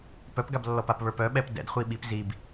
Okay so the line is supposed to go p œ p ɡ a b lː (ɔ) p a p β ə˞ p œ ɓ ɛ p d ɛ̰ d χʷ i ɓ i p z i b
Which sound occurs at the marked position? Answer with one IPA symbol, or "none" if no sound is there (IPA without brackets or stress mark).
ɔ